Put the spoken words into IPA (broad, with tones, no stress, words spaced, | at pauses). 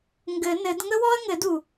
ŋɡɘ˨˩˦nɘ˨˩˦d ŋə˥wɔ˥ɐ̯ŋɘ˨˩˦du˩